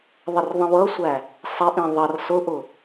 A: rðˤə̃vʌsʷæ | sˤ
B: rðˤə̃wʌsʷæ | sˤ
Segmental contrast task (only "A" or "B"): B